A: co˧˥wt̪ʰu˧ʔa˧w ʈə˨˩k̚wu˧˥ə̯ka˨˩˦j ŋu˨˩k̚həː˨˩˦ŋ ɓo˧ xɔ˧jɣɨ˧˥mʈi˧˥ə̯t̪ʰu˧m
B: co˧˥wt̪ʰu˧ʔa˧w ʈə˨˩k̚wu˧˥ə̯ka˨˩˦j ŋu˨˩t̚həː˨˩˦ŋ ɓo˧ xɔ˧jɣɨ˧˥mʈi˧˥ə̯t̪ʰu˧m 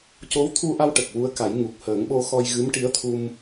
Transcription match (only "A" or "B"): A